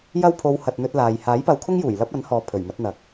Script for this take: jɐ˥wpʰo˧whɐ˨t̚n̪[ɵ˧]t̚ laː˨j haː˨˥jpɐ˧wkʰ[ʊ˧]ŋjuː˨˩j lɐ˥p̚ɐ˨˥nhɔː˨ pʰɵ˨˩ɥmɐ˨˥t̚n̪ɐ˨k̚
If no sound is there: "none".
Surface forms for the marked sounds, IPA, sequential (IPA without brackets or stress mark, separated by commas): ɵ˧, ʊ˥